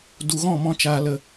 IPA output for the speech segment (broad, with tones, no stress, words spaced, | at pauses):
du˨ɣɔ̃˦˨mɔ̃˧ t͡ʃaː˧lə˧